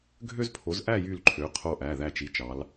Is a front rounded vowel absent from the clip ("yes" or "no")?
no